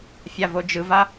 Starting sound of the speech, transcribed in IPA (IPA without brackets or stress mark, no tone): fʲ